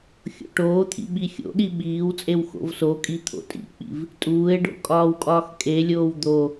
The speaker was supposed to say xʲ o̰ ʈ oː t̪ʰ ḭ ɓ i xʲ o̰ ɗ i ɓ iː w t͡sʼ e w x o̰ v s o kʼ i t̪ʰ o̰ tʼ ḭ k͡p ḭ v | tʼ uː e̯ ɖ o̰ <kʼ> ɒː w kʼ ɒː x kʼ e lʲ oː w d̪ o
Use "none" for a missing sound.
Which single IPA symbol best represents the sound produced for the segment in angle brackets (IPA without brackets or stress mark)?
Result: kʼ